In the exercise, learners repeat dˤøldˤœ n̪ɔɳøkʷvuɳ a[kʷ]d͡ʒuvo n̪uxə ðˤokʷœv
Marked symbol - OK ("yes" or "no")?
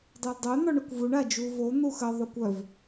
no